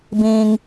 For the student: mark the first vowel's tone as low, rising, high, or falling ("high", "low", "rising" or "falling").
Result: high